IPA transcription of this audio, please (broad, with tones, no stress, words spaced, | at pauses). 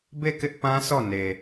be˦˨kɪ˦ʔ pã˦sɔ˦˨ne˨